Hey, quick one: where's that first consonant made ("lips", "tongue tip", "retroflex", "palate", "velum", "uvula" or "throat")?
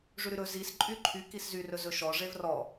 retroflex